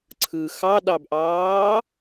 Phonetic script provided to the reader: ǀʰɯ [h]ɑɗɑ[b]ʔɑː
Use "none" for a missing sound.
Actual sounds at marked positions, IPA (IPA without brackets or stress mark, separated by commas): x, b